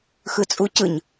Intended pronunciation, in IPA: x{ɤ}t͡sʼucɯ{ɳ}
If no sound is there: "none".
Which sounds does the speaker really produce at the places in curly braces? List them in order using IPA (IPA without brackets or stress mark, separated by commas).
ɯ, ɲ